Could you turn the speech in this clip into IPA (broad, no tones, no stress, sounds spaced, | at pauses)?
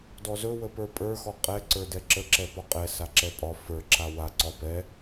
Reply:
d ɔ z ɵ w ə p ə˞ pʼ ə˞ x ɔ qʼ ɛ ǀ ə˞ d ɛ ǁ ə ǁ ɛ p ɒ qʼ ɛ s a ǁ ɛ pʼ ɒ f ə˞ ǁ a w a ǀ ɒ p ɛ